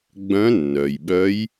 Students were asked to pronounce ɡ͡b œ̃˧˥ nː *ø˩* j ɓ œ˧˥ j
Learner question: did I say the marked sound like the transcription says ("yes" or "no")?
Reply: no